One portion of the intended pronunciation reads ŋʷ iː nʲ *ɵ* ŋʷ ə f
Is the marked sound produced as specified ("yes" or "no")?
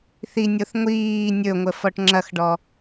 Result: yes